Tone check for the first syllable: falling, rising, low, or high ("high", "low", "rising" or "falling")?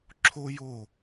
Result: high